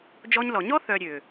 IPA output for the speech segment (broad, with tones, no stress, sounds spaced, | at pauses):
d͡ʒ ɔ˦ ɲ l ɔ˨ ɲ ɔ˦ θ œ˨ ɾʲ ø˨